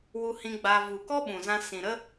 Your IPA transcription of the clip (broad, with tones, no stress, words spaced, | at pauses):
wu˧hĩ˧ɡ͡ba˧ vu˨kɔ˦ɓũ˨zã˧ sĩ˨ɾə˦